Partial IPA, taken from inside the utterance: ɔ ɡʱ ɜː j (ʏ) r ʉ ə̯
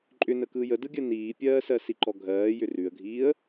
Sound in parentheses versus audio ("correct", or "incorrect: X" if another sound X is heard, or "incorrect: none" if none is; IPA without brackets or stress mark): correct